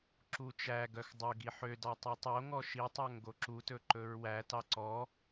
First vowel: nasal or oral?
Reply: oral